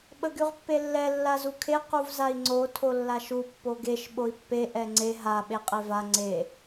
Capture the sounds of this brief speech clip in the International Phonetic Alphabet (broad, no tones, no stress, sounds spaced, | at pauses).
ɓ ə ɡ y ʁ pː e lː ɛ lː a z u kʰ e q u v z a i̯ ŋ͡ǀ o tʰ o lː a ʃ u pː o ɡ e ʃ ɓ o i̯ pː e ʔ ɛ ŋ͡ǀ e ɦ a ɓ e qʼ e v a ŋ͡ǀ e